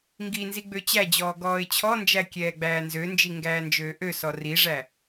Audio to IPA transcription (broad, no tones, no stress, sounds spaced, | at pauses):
ŋ ɡ i n z i ɡ͡b ø t͡ɕ æ d͡ʑ ɔː ɡ ɔː ɪ̯ t͡ɕʰ ɔ n d͡ʒ æ kʲ ɛː ɡ͡b æː n z ø n d͡ʒ i ŋ ɡ æː n d͡ʒ øː ʔ ø s ɔ r i ʐ æ